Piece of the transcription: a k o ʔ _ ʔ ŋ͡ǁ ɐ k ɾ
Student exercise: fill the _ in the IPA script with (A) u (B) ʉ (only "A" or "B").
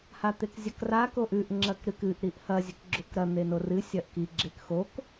B